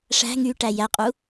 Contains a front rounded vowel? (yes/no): yes